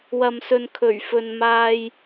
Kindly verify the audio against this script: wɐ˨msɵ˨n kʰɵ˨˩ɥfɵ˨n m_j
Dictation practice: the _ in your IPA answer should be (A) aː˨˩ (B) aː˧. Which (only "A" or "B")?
B